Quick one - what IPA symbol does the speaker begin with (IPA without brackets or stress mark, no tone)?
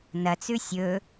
n